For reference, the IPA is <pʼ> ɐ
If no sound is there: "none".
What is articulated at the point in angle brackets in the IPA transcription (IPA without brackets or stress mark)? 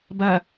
b